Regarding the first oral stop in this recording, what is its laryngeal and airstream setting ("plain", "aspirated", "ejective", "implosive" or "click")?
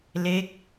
plain